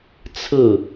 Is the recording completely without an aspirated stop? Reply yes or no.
no